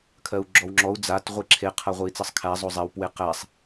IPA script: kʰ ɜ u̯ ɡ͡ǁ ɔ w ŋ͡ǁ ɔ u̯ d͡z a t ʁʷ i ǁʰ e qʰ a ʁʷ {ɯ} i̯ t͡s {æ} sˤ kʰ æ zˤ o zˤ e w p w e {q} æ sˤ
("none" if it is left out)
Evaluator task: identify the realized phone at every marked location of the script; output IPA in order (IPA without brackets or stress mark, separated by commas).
ɯ, ɜ, q